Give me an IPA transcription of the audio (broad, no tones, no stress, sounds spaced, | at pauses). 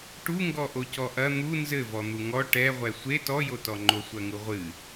ʈ u ŋ ɡ ɔ ʔ o c ɔ ʔ ɐ n̪ u n z ɘ v ɔ n̪ u ŋ ɔ ʈ ɛ ʁʷ ɛ sʷ e t ɔ j o t ɔ ŋ͡ǃ o sʷ ɐ ŋ u ʁʷ ɨ